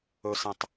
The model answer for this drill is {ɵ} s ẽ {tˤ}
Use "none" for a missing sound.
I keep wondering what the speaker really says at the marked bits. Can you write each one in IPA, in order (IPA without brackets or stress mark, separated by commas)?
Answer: ɵ, tˤ